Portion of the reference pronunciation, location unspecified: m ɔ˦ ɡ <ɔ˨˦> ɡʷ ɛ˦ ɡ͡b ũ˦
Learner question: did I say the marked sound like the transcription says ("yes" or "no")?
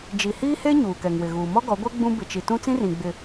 yes